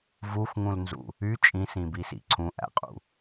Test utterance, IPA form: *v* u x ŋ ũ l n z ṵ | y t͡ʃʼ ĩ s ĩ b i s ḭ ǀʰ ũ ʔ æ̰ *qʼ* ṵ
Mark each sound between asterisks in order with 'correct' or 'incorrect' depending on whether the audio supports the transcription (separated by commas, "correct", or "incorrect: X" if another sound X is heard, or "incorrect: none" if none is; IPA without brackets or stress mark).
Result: correct, correct